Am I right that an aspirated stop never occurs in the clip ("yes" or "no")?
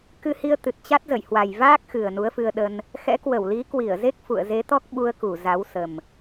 yes